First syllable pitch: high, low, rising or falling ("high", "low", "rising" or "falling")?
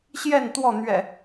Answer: falling